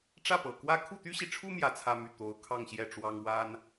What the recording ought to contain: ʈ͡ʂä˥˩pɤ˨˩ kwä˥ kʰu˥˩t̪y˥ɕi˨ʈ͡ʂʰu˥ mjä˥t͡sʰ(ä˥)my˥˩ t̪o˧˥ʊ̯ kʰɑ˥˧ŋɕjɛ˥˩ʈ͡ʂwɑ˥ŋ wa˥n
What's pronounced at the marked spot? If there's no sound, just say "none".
ä˥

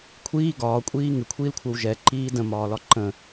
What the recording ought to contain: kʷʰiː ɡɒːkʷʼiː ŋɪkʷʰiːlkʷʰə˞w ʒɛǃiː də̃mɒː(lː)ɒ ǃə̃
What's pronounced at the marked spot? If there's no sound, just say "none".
l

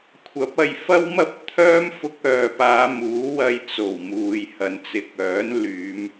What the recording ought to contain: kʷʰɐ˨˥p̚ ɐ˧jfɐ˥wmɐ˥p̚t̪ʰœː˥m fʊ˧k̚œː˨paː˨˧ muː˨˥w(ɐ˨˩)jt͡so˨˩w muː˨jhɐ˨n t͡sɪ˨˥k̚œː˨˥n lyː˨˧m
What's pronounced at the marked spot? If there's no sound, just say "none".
ɐ˧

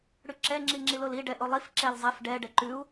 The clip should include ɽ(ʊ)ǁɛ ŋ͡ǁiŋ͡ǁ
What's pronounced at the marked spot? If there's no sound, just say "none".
ʉ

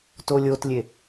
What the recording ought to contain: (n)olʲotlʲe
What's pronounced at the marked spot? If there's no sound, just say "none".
t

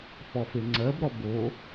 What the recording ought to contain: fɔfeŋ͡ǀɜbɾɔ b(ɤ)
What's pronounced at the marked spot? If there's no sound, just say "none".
o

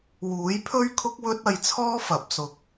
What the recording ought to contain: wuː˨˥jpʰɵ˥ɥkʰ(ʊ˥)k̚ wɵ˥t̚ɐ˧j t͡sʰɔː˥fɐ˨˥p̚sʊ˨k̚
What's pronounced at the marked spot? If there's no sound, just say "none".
ʊ˥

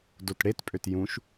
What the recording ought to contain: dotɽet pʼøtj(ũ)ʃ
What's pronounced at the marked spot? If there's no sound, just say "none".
ũ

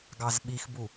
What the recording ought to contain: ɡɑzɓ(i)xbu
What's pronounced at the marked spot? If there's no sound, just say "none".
i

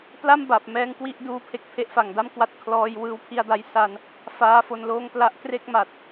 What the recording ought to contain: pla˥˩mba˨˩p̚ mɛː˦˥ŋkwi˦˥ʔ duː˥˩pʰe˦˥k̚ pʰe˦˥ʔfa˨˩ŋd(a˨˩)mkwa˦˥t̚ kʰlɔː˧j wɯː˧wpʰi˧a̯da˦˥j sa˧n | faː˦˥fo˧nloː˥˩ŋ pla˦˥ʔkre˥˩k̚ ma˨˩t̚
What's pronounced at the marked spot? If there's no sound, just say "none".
a˥˩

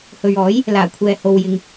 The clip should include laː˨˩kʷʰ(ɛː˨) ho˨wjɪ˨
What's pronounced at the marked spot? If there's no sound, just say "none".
ɛː˨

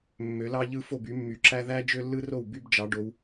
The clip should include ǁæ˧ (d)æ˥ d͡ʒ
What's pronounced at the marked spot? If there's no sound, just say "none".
ð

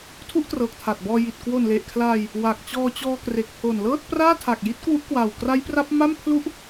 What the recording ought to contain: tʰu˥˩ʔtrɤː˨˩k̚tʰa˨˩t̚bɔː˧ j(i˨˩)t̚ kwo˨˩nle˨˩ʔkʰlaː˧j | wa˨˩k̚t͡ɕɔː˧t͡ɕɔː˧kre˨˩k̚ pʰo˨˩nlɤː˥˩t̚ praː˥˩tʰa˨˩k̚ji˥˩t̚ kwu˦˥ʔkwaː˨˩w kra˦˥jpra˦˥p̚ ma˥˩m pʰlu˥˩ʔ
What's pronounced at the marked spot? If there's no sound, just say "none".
i˨˩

